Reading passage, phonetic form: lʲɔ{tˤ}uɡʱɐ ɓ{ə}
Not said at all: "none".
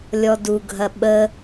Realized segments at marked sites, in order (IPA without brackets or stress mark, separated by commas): d, ə